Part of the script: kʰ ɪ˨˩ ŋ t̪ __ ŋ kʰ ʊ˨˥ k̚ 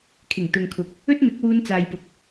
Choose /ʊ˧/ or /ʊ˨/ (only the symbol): ʊ˨